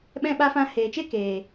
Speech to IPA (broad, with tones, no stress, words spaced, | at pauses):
ɓɛ̃˧ ɓa˧fã˧ heː˨t͡ʃe˦ keː˨